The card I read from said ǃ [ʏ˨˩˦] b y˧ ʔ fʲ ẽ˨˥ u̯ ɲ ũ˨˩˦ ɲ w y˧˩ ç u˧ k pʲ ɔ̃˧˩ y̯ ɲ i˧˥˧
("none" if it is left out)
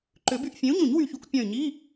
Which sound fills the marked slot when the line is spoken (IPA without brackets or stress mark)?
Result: ʏ˨˩˦